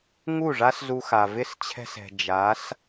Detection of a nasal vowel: absent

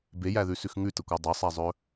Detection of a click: absent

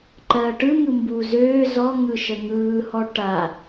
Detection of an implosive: absent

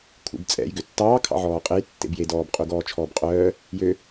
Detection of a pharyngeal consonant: present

